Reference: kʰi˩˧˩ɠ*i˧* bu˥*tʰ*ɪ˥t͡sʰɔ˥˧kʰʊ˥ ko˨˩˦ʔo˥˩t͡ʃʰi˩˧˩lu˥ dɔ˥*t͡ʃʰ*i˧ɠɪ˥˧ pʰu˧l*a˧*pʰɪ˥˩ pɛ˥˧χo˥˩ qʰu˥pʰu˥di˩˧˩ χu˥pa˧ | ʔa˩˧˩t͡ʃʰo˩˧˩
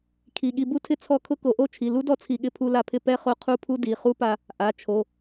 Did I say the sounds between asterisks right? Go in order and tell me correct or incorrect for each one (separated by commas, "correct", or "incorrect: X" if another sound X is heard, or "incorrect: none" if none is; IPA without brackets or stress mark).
correct, correct, incorrect: t͡sʰ, correct